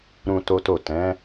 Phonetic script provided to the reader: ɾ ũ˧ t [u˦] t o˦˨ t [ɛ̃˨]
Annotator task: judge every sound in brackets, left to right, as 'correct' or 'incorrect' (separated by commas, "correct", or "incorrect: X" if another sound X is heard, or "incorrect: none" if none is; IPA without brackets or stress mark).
incorrect: o˦, incorrect: ɛ̃˨˦